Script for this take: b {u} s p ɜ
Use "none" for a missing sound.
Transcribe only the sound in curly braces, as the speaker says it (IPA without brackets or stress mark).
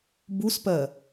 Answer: u